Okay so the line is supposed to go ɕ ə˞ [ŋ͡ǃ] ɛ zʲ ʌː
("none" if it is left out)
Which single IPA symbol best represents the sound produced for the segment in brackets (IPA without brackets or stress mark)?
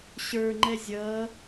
ŋ͡ǃ